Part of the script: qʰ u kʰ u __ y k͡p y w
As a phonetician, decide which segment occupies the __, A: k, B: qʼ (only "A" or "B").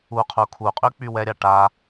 B